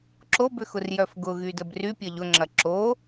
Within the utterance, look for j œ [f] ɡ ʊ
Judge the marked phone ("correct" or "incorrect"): correct